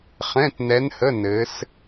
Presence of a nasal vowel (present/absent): present